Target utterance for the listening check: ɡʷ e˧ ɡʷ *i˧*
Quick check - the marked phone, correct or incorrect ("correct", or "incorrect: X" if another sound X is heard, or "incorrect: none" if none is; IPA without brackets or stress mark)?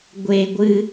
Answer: incorrect: ɨ˧